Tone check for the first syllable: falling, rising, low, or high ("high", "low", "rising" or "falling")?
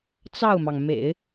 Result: falling